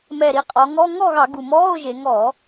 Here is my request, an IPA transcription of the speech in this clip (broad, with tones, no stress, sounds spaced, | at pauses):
m ɛ˨˩ ɾ i˩˧ qʼ ɔ˩˧ ŋ ɔ˧˥˧ ŋ ɔ˥˨ ɣ ɑ˧˩˧ ɡ u˨˩ m ɔː˧˥˧ ʊ̯ ʒ e˩˧ ŋ ɔː˧˩˧